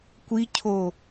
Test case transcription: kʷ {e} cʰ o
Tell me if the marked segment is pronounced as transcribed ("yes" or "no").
no